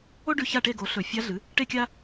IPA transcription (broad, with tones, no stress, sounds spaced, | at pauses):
o˥ ɖ ʉ˧ ç a˥˨ ʈ e˥˨ ɡ o˩˥ ɬ ɵ˧˩˧ fʲ a˧˥ ɮ ɨ˩˥ | ʈ e˥ kʲ a˥